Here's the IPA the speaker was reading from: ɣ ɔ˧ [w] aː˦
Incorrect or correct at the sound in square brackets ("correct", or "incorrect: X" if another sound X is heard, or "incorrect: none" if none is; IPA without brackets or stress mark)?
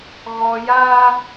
incorrect: j